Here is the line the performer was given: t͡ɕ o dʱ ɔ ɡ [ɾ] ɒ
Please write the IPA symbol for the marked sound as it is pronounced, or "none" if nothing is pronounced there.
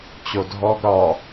ɾ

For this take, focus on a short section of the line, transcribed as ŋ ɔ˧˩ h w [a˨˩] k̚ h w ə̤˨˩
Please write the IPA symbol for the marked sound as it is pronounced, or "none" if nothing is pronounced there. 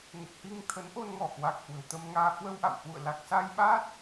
a˨˩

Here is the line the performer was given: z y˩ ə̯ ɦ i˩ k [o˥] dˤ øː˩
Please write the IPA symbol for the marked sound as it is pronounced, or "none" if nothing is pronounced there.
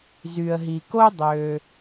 o˥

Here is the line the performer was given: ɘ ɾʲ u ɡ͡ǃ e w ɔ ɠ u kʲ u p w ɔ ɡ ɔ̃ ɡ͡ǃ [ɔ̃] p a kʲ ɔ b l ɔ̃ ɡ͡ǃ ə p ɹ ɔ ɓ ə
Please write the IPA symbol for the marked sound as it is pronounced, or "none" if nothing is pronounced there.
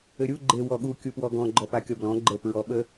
ɔ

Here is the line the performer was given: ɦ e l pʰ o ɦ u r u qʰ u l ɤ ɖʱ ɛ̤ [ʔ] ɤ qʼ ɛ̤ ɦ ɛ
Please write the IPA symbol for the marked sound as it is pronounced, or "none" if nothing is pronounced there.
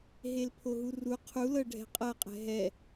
qʼ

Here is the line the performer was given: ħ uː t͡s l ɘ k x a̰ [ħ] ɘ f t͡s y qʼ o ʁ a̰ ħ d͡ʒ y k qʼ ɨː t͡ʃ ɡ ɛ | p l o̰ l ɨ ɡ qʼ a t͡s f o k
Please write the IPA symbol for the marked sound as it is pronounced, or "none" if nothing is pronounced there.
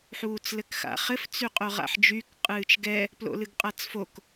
χ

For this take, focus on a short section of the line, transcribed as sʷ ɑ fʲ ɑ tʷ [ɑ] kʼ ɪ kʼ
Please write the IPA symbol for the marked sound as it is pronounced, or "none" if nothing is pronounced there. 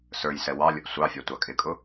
ɑ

